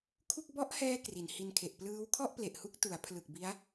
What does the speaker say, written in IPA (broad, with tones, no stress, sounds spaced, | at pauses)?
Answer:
kʰ u˥˩ k̚ b ɔ˦˥ ʔ h ɛː˧ k r i˩˦ n h i˧ n kʰ e˨˩ ʔ p l ɯː˦˥ w kʰ ɔ˥˩ ʔ p l e˨˩ ʔ h u˦˥ k̚ t u˩˦ a̯ pʰ l ɯ˨˩ k̚ b i˦˥ a̯